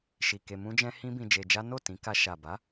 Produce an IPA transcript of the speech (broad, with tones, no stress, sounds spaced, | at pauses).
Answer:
ʃ i˨ k e˧ m ũ˦ d͡ʒ ɛ̃˦ h ĩ˦ b ĩ˧ d͡ʒ e˧ d͡ʒ a˦ n o˦˨ t ĩ˨˦ k a˧ ʃ a˨ b a˨˦